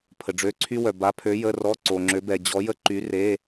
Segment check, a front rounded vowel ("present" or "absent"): present